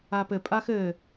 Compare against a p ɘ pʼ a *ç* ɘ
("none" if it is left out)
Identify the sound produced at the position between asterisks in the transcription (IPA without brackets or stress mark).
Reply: x